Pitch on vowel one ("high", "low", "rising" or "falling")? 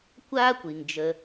high